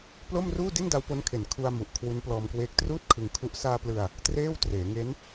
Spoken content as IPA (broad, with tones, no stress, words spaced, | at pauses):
plo˥˩mruː˥˩ di˥˩nda˦˥wpo˦˥nkʰe˨˩n kʰu˧a̯mu˨˩ʔ kʰwu˦˥nplɔː˧mkweː˦˥k̚ truː˥˩t̚kʰɯ˧ŋkʰu˦˥ʔ saː˧plɯ˧a̯ | treː˥˩w treː˩˦ŋe˦˥n